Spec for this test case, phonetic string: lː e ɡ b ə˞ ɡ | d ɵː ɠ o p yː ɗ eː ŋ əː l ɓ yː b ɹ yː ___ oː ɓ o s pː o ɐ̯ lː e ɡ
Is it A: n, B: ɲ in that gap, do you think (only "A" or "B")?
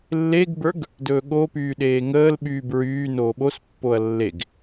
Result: A